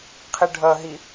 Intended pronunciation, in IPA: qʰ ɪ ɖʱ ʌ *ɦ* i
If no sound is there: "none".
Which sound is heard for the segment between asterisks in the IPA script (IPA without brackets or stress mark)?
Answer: ɦ